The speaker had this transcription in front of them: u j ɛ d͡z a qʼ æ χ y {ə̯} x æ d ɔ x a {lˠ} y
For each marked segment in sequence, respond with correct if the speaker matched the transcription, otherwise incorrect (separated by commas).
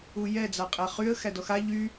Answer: correct, incorrect